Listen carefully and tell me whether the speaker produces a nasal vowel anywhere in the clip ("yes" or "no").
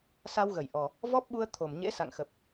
no